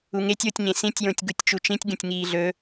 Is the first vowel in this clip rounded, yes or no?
yes